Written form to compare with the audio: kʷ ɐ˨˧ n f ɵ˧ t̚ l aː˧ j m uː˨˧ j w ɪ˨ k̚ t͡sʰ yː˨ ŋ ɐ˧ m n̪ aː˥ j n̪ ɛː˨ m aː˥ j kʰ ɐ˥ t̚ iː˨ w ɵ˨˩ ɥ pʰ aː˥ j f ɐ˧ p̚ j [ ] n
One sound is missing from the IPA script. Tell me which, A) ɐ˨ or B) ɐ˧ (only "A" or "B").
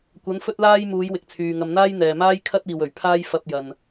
A